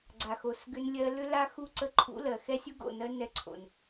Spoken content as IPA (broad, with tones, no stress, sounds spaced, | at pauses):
ɡ͡ǀ a˨ x o˨ s ɡ ʏ˧ n lʲ ɜ˧ l ʏ˧ l a˧ x u˧ ǀ ə˧ ǃʰ ṵ˧ l ɜ˨ x ɛ˦ sʲ u˦ ɡ o̰˦˨ n ɜ˧ n ɛ˧ ǀʰ o̰˨ n